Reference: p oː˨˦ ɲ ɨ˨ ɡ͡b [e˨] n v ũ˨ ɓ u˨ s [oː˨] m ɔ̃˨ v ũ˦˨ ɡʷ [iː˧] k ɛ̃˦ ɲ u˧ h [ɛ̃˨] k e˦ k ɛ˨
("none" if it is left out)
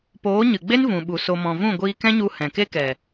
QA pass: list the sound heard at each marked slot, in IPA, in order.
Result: e˦, o˨, iː˧, ɛ̃˨

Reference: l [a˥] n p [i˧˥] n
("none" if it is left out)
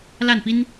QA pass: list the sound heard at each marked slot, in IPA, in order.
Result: a˥˩, i˥

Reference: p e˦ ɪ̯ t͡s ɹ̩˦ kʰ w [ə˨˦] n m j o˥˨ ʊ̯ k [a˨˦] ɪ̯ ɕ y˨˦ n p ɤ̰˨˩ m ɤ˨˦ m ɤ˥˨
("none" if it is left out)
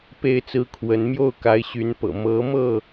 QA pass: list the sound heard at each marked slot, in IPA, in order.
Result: ə˨˦, a˨˦

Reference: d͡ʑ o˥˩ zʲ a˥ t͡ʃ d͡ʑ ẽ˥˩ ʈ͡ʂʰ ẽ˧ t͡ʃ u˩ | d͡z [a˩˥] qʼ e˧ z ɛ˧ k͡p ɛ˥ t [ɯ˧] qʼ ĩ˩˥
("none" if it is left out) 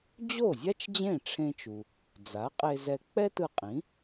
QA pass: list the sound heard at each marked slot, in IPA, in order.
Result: a˩˥, ɯ˧

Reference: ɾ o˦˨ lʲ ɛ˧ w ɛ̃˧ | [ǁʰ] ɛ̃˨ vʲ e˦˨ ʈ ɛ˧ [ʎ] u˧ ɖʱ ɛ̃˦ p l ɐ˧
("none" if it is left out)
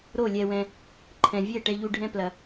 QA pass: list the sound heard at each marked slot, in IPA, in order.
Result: ǃʰ, ʎ

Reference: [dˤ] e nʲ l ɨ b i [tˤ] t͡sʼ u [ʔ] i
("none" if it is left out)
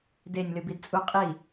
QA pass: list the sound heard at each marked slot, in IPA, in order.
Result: d, d, qʼ

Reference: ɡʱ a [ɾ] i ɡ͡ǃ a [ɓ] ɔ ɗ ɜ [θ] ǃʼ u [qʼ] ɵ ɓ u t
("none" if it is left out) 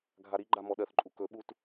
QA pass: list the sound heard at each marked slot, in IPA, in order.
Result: ɾ, m, θ, k

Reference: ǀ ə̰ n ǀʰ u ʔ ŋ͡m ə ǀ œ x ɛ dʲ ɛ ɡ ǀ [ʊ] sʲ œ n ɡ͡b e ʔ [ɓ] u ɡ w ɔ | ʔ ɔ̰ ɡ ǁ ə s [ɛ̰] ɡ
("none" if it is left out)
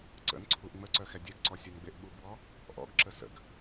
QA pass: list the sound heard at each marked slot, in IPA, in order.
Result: ɔ, ɓ, ə̰

